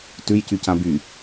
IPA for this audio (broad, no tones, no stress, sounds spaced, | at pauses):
t ʉ j c y c ã b y